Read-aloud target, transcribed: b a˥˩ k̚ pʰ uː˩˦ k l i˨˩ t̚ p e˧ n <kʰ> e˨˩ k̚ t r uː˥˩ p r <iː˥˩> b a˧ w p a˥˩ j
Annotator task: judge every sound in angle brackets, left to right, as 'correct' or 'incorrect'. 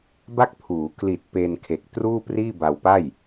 correct, correct

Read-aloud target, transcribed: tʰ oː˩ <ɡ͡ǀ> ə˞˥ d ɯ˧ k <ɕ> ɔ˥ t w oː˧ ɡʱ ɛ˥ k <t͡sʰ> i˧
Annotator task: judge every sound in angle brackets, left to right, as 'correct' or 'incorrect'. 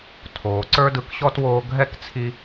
incorrect, correct, correct

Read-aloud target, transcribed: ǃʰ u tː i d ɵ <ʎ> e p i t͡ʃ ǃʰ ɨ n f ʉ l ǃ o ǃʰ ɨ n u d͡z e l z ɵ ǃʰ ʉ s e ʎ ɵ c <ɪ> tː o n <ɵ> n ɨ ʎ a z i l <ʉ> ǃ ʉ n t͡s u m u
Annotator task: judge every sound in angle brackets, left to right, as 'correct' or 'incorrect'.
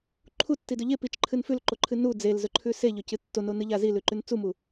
correct, incorrect, incorrect, correct

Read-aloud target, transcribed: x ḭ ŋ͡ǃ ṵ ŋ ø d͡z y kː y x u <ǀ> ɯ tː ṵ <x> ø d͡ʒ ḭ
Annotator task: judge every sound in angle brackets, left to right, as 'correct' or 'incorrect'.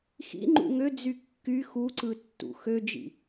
correct, correct

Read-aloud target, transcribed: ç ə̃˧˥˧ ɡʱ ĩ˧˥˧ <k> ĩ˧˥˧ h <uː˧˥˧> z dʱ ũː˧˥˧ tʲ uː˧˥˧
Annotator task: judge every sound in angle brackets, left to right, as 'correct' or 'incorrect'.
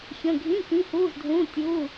correct, correct

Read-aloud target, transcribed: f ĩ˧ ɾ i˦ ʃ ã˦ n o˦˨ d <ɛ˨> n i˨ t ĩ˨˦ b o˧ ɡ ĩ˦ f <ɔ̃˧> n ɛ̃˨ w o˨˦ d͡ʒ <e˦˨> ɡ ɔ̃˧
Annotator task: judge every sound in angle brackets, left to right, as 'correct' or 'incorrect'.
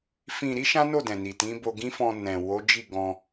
incorrect, correct, incorrect

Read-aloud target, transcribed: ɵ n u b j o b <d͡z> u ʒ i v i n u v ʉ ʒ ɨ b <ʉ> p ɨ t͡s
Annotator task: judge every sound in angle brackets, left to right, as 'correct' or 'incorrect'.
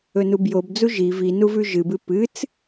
correct, incorrect

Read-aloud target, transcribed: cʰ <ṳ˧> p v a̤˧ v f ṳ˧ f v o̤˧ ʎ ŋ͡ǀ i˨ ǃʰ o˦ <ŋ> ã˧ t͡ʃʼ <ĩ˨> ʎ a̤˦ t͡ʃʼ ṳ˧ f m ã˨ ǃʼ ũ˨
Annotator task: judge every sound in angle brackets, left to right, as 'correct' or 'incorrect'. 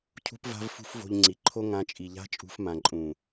correct, correct, incorrect

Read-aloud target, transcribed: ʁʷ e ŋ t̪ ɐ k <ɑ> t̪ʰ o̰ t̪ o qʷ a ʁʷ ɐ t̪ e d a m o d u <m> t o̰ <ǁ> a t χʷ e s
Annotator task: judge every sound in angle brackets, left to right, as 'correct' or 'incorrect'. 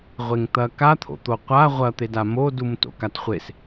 incorrect, correct, incorrect

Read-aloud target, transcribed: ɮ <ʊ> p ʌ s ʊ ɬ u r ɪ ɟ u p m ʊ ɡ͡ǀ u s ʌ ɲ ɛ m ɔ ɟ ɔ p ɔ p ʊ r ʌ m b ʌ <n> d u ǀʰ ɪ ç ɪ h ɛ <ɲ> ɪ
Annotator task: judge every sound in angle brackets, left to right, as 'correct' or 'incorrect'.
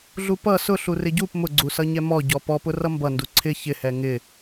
incorrect, correct, incorrect

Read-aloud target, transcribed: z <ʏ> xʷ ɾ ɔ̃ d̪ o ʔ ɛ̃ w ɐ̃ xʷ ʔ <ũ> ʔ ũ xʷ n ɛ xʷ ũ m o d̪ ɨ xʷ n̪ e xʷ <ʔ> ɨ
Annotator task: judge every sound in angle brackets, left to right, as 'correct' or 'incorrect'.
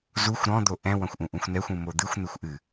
incorrect, correct, correct

